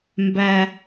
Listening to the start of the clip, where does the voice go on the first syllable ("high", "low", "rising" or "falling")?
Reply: low